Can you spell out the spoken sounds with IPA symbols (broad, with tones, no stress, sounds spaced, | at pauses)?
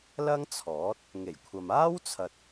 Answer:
l ɐ˥ ŋ t͡sʰ ɔː˨˥ t̚ | ŋ e˨˩ j kʷʰ ɐ˨ m aː˥ w t͡sʰ ɐ˨ t̚